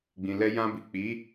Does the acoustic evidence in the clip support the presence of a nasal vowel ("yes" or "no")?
yes